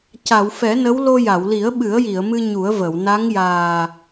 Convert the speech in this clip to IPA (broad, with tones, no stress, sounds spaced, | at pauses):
c a˨˩˨ w f ɛ˨˩˦ n ə˧˥ w l o˧ j a˨˩˨ w l i˨˩˦ ə̯ ɓ ɨ˨˩˦ ə̯ j i˨˩˨ ə̯ m ɨ˧ ɲ u˨˩˦ ə̯ v ə˨˩˨ w n a˧˥ ŋ j aː˨˩